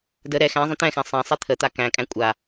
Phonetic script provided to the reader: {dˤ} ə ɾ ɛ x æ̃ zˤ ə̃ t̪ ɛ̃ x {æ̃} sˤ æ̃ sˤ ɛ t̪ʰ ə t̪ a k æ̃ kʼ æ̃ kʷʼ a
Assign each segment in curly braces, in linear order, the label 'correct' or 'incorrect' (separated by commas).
incorrect, correct